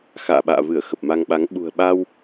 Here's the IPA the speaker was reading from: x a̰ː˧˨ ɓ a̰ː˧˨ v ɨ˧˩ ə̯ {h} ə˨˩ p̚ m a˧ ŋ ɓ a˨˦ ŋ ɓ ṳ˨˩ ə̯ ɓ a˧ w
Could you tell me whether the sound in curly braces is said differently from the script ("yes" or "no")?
yes